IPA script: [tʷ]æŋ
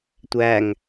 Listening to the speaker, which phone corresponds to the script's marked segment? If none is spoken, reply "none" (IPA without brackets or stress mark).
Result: tʷ